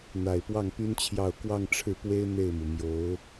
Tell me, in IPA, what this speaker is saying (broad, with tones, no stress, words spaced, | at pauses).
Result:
n̪a˨˩ɪ̯pwɑ˥˩ŋpy˥nt͡ɕʰjɑ˥˧ʊ̯ kwɑ˥˧ŋʈ͡ʂʰɻ̩˥˩pwe˥ɪ̯ n̪e˥˩ɪ̯mu˩mjo˧˥ʊ̯